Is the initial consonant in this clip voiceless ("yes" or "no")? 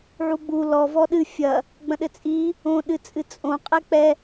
no